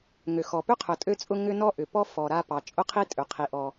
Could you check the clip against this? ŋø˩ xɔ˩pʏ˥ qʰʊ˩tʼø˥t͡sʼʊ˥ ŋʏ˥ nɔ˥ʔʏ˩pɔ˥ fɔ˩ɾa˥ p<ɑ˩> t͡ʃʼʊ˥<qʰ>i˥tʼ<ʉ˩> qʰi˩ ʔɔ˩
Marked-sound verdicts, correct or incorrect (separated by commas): correct, correct, incorrect